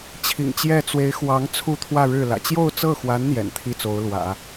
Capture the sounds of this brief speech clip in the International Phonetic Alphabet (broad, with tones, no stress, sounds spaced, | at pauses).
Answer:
t͡ɕʰ ḭ˨˩ ŋ t͡ɕ j ɛ˥˩ t͡s w e˧˥ ɪ̯ x w ɑ˧˥ ŋ t͡sʰ u˥˧ t̪ʰ w ä˥˧ ɻ ɻ̩˥˩ l ä̰˨˩ t͡ɕ j o˥˧ ʊ̯ t͡s ɤ˥˩ x w a˧˥ n n̪ j ɛ̰˨˩ n t̪ʰ i˥˩ t͡s o˧˥ ʊ̯ l w ä̰˨˩˦